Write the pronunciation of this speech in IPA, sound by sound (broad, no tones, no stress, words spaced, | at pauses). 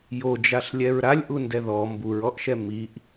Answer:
jod͡ʒaɬlʲɛɹ ɾalʲʔundɛ ðɔ mbuɹɔʔʃɛ miʔ